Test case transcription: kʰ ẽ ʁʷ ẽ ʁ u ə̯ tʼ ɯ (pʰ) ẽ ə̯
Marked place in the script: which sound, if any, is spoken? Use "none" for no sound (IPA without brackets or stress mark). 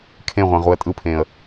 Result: pʰ